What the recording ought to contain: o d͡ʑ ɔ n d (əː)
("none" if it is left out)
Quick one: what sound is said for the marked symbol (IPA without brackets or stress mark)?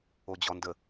ə